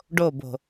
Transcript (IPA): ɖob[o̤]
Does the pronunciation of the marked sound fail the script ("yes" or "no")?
no